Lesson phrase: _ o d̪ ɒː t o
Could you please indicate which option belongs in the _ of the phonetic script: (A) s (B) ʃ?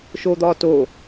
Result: B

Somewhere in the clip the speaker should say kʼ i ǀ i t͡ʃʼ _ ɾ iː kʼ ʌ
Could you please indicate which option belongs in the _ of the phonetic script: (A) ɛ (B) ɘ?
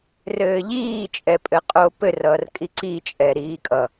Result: A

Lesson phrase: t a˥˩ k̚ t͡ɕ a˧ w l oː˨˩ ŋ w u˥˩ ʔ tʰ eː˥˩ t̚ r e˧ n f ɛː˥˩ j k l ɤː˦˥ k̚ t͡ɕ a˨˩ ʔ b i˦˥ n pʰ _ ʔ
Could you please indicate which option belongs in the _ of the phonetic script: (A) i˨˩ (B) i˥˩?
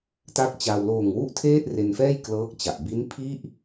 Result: B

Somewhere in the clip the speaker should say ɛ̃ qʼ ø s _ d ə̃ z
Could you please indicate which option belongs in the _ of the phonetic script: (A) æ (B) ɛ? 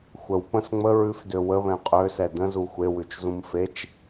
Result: B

